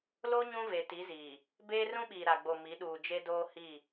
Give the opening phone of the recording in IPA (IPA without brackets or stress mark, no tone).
l